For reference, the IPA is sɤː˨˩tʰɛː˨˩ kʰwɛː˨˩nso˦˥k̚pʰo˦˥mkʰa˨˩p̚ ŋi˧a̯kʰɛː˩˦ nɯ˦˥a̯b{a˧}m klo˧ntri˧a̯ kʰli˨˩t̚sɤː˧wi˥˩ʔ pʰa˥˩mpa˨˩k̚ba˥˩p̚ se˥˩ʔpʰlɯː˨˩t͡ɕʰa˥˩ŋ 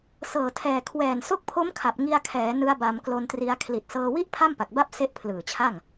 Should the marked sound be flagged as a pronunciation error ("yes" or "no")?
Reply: no